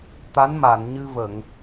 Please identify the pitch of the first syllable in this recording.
rising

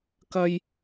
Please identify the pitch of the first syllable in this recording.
high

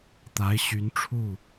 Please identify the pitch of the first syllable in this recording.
rising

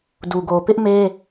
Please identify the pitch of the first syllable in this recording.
low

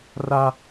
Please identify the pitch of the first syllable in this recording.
high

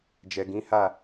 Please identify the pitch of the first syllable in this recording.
low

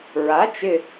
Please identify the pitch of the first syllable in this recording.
rising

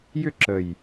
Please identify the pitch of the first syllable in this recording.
falling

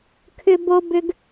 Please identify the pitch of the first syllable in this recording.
high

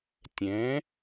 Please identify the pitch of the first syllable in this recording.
rising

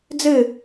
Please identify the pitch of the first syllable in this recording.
falling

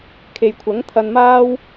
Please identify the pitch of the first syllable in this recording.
low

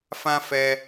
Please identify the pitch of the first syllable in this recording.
high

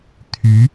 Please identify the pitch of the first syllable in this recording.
rising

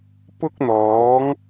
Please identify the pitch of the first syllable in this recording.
high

